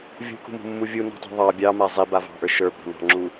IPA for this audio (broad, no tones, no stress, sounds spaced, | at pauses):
vʲ ṳ k ṳ m ṳ mː u vʲ u n ɔ̤ tˤ ṳ ðˤ ɑ bʲ ɑ m a zˤ i b a v ɑ̤ ʔ ə˞ ʃ ə˞ b ɑ̤ n ɑ̤ ŋ͡ǁ u